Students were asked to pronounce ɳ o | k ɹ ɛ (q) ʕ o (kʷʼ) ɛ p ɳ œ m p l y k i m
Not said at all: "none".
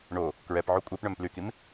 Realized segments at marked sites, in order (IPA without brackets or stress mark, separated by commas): p, kʷʼ